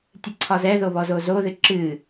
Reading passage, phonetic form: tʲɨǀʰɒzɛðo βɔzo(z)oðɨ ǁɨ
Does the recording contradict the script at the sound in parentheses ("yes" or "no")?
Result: no